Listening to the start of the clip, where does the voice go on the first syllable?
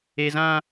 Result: high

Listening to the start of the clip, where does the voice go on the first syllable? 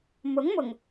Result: rising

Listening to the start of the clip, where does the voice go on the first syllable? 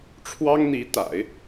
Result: high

